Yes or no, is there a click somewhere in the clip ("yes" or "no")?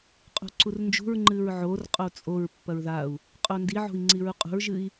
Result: yes